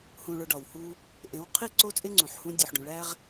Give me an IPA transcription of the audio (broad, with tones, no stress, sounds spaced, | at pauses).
h ũ˨ ɭ o˨ ɖ ɒ˨ w h u˦ | ʔ ẽ˨˦ w qʰ i˦ ǀ o˦ t͡sʼ e˦ ŋ͡ǀ ũ˨ ħ h ũ˦ dʲ o˨ ħ ɖ ũ˨ ɭ æ˦ ʁ